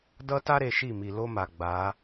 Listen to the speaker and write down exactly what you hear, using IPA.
d ʌ˦ t a˦ ɾ e˨ ʃ i˦˨ m i˨ l o˦ m a˨ ɡ͡b a˨˦

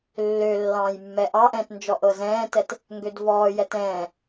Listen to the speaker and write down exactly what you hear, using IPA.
lː ø lː ɑ̃ː j mː ɛ ʔ ɑ ʔ ɛ̃ː t n d͡ʒ ɔ ʔ ɤ z ɛ̃ː t ɛ t | ŋ ɡ ø d v ɔː j ɛ t ɛ̃ː

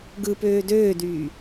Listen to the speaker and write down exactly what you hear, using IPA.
ɡ ɯ p øː d øː d yː

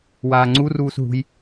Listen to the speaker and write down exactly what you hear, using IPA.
w aː ŋ͡ǀ u r uː s ɦ ṳ j

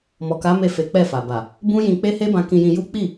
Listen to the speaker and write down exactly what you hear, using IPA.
m ɔ˨ k a˨˦ m e˦˨ f e˨˦ k͡p ɛ˦˨ f a˨ b a˨ | b ũ˦ j ĩ˧ k͡p e˦ h e˦ b ã˧ k ĩ˧ j ĩ˧ j u˦ k͡p i˦˨

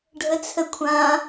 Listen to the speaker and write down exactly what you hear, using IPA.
ɖʱ ə t͡sʰ ə kʷʰ ã

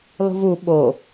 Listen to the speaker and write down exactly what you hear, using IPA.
lˠ ṳ v u ɓ o

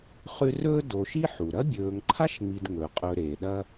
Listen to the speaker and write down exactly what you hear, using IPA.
χ ʉ˦ r ɵː˥ d o˨ ʃ i˥ ħ u˩ ɾ ɐ˥ bʲ ɵː˨ ŋ ǃʰ a˥ ʃ ŋ͡m i˨ d ŋ ɵ˩ qʼ ɵ˨ ɾ e˩ ɗ ɐ˦

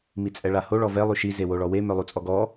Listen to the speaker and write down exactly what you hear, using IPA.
m i t͡sʼ ɛ ɭ a h o ɭ ɔ v ɛ lˠ y ʃ i z e w o ɭ ɔ w e m œ lˠ u t͡sʼ ɔ ɡ ɔ

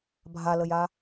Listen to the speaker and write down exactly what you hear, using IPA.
bʱ a l ə j a

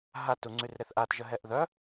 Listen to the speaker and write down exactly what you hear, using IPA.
ɦ a t u ŋ͡ǀ y r ɾ e θ ʔ a t ʒ ə ɦ ɛ ʔ ð œ

